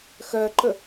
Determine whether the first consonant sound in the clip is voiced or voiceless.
voiceless